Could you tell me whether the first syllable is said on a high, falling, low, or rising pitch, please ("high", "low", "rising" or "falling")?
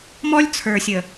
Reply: high